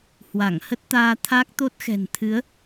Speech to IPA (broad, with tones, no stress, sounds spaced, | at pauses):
h w a˧˩ ŋ h ə˦˥ t̚ t̪ aː˧ t̪ʰ a˦˥ k̚ t̪ o˦˥ t̚ x ɛ̤˨˩ n t̪ʰ ɨ˨˦ ə̯